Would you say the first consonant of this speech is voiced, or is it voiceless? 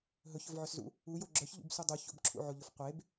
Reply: voiced